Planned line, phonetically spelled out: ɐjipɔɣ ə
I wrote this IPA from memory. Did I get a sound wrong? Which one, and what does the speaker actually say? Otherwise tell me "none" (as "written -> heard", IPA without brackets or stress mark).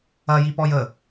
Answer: ɣ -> j